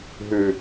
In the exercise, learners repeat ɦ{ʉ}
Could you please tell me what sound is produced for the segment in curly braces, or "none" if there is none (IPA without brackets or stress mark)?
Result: ʉ